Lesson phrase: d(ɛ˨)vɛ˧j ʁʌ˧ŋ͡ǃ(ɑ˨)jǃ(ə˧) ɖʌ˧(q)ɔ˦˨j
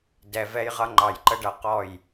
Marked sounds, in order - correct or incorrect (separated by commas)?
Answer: correct, correct, correct, correct